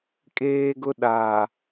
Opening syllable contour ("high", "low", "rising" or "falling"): high